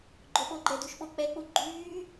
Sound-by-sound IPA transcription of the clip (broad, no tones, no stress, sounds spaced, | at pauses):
ɡ͡ǃ o ɓ o ɡ͡ǃ ɛ d u ʃ ɓ o k͡p ɛ k͡p u ɡ͡ǃ yː